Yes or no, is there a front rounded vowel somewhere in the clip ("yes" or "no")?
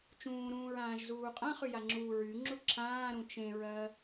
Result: yes